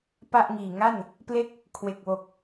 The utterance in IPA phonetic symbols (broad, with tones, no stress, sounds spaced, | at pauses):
p a˥˩ ʔ ŋ iː˨˩ ŋ a˥˩ n | p l e˥˩ k̚ | kʰ w e˨˩ k̚ w o˨˩ k̚